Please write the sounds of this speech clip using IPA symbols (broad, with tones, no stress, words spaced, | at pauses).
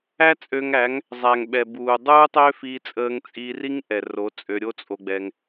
æ˦t͡sʼø˧ŋæ˨˦ŋ | zˤæ˨ŋɓɛ˨ buː˨ dˤuː˦tˤø˦fiː˧t͡sʼəː˧ŋ t͡sʼiː˧ri˦ŋ ʔɛ˨ro˨˦ t͡sʼø˧ɾʲo˦t͡sʼo˧ɡ͡bɛ˧ŋ